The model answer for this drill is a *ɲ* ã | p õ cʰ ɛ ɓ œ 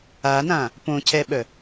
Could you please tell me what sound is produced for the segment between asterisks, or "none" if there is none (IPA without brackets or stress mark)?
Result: n